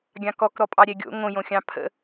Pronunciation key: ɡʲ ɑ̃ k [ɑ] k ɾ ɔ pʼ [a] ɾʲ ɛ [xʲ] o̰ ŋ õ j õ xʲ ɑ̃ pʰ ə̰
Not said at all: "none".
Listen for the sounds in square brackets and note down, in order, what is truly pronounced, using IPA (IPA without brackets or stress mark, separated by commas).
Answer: ɔ, ɑ, ɡʲ